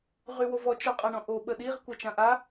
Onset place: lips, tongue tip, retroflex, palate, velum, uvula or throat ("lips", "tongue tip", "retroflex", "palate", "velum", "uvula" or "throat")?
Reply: uvula